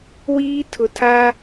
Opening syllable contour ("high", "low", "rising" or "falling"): high